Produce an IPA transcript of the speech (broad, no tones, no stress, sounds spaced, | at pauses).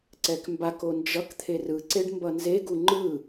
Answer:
ǀ ɛ k m b a k o n d͡ʒ ʌ k t̪ʰ e r ɯ ǀ e ɖ m b ʌ n z e ɡ u ŋ͡ǃ ɯ